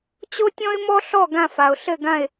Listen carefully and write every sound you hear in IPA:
t͡ɕo˥tʲɔ̃˥ɪ̯mɔ˥ɬɔ˥˧ ɡã˥˧fa˨ʊ̯ ɬɘ˥˧ɡã˥˧ɪ̯

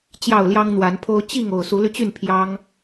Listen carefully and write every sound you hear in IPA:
t͡ɕjɑ˥˨ʊ̯ljɑ˦ŋn̪wa˨˦npʰo˦ʊ̯ t͡ɕi˥˨ŋ o˨˩ʊ̯su˨˦ly˧t͡ɕy˥˨n pʰjɑ˦ŋ

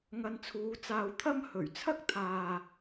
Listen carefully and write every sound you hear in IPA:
ŋɐ˧nt͡sʰuː˨˧ t͡saː˧wt̪ʰɐ˥m hɵ˨˩ɥt͡sʰɐ˥k̚t̪ʰaː˨

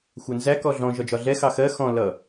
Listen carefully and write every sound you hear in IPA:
xʷɜnzæ kɔɮɔ̃ ʒɒd͡ʒɒɮɛ xɑxɜ xɔ̃ lʌ

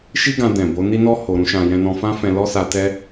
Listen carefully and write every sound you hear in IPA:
ʃi˦ɡã˧ dɛ̃˨bo˨˦ ni˦nɔ˦ ho˧ɾũ˦ʃã˧ jɛ̃˧nɔ̃˧fã˦fɛ̃˧ lɔ˦sa˧tɛ˦

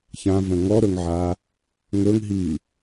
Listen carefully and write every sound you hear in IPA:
çãvə̃ ŋɔɾɵŋʕa | ŋɵŋɦi

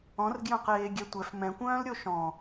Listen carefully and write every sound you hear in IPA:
ɔ̃rɡjœ̃qeː ɡʲɛtʷɛf mɛ̃kʷœ̃ːlɾʲo ʃɔ̃

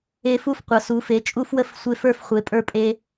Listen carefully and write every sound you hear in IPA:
e˦fu˥˨fqʷʌ˨˦ su˨˦fe˨˦ t͡ʃʼu˦fwə˦f sʷe˦fə˞˥˨f χʷe˨˦pʼə˞˦pʼe˦

